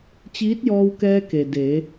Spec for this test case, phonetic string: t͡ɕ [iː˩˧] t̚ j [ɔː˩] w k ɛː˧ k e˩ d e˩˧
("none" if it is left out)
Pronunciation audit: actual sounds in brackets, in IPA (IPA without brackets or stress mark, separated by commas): iː˧˥, ɔː˧